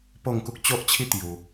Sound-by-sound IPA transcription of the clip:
p o˥˧ ŋ k u˦ k̚ t͡ɕ o˦ ʔ t͡ɕʰ i˦ t̪ j u˧

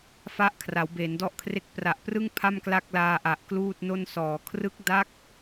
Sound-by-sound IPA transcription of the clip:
f a˦˥ ʔ kʰ r a˩˦ w b e˩˦ n d ɔ˦˥ ʔ kʰ r e˦˥ k̚ p r a˨˩ ʔ p r ɯ˥˩ ŋ pʰ a˥˩ m k l a˥˩ k̚ l aː˧ ʔ a˨˩ ʔ k l uː˥˩ t̚ n o˥˩ n s ɔː˩˦ kʰ r ɯ˦˥ k̚ d a˦˥ k̚

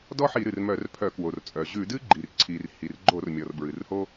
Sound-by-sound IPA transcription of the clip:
d ɔ˥ ħ i˧˩˧ ɾ ɨ˩ r m œ˧˩˧ r pʰ œ˧˩˧ k w o˩ r t͡sʼ œ˩ ʑ ʉ˧˩˧ d ɨ˥ ɡ͡ǃ i˩ r ǀʰ i˩ r h i˩ r ɡ͡ǃ o˧˩˧ r mʲ ɔ˩ r b ɹ ɨ˩ r h o˥

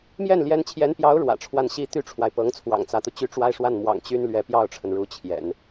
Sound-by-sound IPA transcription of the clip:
m j ɛ˥˩ n l j ɛ˧˥ n t͡ɕʰ j ɛ˧˥ n p j ɑ˧˥ ʊ̯ ɻ w ä̰˨˩ ʈ͡ʂʰ w a˥˩ n ɕ i˥ t̪ y˥ ʈ͡ʂʰ w a˨ ɪ̯ p ɤ˧˥ ŋ t͡sʰ w ɑ̰˨˩ ŋ t͡s ä˧˥ t̪ u˧ t͡ɕ y˥˧ ʈ͡ʂ w a˥˧ ɪ̯ ʂ w a˥˩ n m w ɑ̰˨˩ ŋ t͡ɕ y˥ n l ɥ ɛ˧˥ p j ɑ˥˩ ʊ̯ ʈ͡ʂʰ ə˩ n ɻ u˧˥ t͡ɕʰ j ɛ̰˨˩˦ n

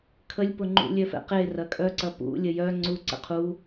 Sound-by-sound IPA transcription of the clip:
kʰ ə lʲ p ʊ ŋ͡ǃ ṵ lʲ œ f ɛ̰ q e r ɐ kʼ œ ǀ ɐ p ṵ lʲ ə j œ ŋ͡ǀ u ǀ ə̰ qʰ u

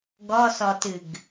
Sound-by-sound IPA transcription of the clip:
ɡ ɔ s ɔ t ɨ ɡ

